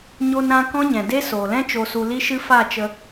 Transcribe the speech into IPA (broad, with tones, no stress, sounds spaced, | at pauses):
ɲ o˧ n ɾ ã˧ k ɔ̃˦ ɲ ɛ̃˨ d e˦ s oː˨ l ɛ̃˦ t͡ʃ o˧ s u˨ l i˧ ʃ ɨ˧ f a˦˨ t͡ʃ ə˧